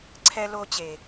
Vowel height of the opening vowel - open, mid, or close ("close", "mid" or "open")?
mid